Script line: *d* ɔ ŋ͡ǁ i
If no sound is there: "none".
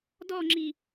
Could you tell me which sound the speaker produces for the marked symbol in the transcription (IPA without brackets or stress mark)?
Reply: d